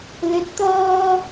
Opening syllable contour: rising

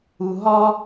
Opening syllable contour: low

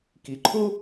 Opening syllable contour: low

